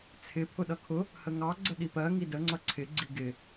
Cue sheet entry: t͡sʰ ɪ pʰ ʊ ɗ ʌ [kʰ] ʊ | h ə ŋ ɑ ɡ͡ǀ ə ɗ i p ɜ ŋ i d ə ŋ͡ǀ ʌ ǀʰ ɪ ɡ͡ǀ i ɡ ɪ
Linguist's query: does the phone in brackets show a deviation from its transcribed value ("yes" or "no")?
no